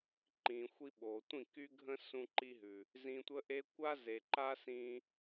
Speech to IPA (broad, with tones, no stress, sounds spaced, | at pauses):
ǃ ĩː˨ xʷ i˧ ɓ oː˨ tʷ ĩ˦˨ k y˦ ɡʱ ə̃˦ s ũ˧ ǃ i˧ ɦ ʉ˨ | z ĩ˧ tʷ ə˦ ʔ e˦ kʷ a˦ z e˨ ǃ a˦ s ĩː˧